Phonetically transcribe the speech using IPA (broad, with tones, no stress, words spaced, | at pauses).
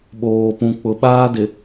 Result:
ɓoː˨pũ˨k͡pʊ˨ ɓaː˦dɪ˨